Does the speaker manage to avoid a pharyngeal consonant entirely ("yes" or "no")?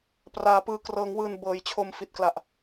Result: yes